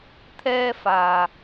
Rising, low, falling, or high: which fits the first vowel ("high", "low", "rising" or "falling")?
high